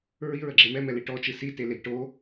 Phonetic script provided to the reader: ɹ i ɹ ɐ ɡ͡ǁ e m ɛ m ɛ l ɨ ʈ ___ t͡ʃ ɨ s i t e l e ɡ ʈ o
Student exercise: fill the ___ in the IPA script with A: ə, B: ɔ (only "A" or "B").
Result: B